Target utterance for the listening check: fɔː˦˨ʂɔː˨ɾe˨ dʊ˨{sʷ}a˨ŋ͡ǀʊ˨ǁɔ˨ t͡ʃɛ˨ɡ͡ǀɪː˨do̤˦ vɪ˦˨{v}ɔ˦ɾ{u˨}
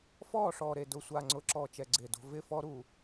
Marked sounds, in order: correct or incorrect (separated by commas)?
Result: correct, incorrect, correct